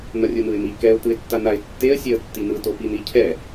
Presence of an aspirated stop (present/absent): present